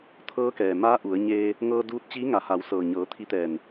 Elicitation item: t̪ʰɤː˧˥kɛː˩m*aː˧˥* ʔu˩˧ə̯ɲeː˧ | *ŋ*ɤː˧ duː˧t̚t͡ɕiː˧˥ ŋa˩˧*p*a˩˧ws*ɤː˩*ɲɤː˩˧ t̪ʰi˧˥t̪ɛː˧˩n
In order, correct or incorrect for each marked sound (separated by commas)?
correct, correct, incorrect, correct